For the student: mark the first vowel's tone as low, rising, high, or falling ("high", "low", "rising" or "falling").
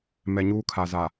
low